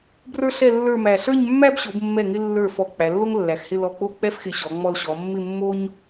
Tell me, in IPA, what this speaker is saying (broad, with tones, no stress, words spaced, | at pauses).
brə˞˥ɬɛ˥˧lːə˞˥˧mæ˧˩ ɬə˞˥˧ɲmːæ˥b ɕo˩˧bmːɛ˧˩ŋɪ˧lːə˞˧˩ fɔ˧˩ k͡pæ˩˧lːo˥ŋlːæ˩˧xhɪ˥˧ lɔ˧˩k͡po˥˧k͡pɛ˥fxɪ˧˩ ɕɔ˩˧ŋ͡mɔ˧l ɕɔ˩˧mːɪ˥˧ mːo˥ɲ